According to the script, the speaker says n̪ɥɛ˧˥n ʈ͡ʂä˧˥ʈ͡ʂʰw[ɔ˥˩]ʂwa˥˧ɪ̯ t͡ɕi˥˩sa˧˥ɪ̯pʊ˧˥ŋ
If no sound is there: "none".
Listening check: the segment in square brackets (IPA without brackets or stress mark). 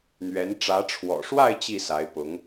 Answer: ɔ̰˨˩